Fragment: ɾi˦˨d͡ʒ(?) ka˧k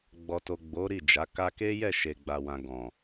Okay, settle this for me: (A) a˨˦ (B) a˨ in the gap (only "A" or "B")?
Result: A